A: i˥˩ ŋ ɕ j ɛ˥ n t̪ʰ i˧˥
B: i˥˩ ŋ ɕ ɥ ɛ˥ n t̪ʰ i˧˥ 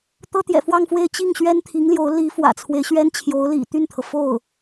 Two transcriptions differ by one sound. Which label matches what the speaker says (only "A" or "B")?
B